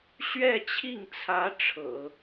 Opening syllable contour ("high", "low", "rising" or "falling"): falling